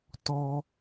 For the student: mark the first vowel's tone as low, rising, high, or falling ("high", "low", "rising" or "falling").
high